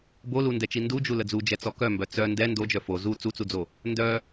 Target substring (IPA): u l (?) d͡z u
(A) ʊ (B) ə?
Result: B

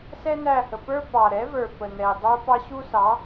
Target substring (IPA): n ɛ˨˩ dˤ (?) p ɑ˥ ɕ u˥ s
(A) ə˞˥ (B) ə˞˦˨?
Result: A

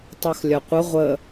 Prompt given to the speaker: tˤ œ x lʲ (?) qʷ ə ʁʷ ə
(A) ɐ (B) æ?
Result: A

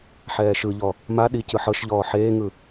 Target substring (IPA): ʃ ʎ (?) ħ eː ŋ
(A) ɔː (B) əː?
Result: A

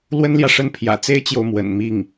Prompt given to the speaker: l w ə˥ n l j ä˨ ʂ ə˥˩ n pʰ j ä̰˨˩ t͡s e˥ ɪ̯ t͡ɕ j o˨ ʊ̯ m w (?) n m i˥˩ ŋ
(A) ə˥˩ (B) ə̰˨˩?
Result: B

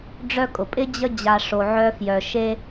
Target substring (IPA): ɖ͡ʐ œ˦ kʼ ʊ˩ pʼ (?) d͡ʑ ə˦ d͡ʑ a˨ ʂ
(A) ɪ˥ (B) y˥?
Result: A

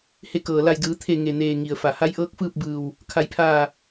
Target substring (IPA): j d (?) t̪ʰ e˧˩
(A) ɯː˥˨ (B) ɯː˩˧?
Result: B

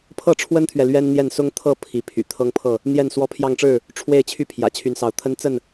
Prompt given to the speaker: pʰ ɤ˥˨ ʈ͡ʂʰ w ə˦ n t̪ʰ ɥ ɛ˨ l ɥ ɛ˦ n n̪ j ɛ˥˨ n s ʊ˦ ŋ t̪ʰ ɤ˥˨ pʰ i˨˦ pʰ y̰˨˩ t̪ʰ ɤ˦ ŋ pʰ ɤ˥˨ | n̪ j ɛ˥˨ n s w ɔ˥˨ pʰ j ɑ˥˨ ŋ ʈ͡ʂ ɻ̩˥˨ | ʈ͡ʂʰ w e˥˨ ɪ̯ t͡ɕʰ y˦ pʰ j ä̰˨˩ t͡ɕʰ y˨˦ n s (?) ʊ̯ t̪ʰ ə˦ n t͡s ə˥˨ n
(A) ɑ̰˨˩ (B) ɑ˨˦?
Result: B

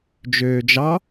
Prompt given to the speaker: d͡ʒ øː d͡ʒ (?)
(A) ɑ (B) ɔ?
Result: A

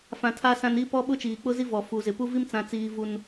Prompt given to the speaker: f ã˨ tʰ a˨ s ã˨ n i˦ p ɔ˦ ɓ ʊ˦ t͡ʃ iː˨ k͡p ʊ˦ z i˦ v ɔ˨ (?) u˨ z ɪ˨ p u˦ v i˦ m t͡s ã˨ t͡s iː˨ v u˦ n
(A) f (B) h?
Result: A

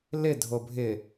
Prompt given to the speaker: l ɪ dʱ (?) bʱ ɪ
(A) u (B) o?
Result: B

